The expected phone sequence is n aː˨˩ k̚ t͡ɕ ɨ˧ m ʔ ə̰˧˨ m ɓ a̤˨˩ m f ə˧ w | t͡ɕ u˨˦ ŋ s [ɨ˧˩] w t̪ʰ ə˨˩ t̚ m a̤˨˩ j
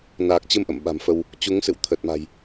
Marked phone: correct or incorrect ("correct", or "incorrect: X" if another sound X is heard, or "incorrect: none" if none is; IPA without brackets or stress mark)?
incorrect: ɨ̰˧˨